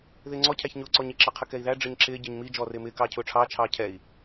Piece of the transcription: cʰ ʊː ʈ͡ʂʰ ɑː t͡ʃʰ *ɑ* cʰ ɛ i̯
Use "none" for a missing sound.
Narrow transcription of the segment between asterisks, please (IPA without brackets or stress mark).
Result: ɑː